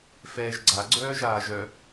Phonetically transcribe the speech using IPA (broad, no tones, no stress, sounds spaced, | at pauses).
f ɛː ʒ ɡ͡ǀ a ɡ͡ǀ œː ʒ aː ʒ œ